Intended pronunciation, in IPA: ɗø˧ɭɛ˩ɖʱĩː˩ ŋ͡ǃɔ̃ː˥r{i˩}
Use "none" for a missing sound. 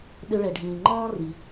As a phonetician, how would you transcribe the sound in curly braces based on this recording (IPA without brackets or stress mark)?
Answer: i˩